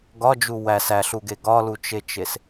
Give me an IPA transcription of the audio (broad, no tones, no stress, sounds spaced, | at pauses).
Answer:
ɡ ɒ d͡ʒ u w æ s æ ɬ u ɡ e ɡ ɒ l u t͡ʃ e t͡ʃ e s